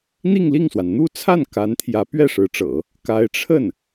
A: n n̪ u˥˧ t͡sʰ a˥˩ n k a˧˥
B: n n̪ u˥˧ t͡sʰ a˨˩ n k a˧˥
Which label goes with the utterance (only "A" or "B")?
A